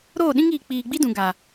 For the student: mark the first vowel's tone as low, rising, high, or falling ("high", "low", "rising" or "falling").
falling